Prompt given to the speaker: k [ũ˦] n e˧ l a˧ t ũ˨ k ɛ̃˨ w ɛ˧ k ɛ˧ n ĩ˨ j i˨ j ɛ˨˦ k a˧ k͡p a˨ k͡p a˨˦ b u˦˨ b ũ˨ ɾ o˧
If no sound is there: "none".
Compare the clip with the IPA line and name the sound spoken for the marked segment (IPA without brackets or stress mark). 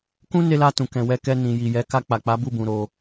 ũ˦